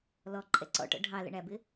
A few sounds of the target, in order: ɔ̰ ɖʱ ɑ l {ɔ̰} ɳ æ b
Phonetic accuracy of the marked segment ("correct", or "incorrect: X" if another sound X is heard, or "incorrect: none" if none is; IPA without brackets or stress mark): incorrect: ə̰